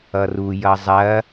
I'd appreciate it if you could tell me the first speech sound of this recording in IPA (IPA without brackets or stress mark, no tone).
ʌ